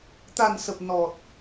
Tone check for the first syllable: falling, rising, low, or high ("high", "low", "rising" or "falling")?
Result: low